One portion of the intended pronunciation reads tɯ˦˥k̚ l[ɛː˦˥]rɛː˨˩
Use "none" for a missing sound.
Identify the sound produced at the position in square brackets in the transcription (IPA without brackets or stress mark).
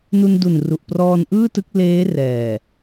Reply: eː˦˥